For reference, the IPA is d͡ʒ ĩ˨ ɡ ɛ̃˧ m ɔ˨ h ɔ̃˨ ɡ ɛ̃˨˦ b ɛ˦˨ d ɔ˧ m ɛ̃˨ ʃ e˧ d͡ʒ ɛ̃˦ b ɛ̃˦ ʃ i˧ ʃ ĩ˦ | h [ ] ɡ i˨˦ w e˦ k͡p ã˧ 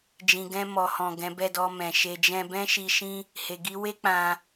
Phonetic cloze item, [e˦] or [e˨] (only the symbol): e˨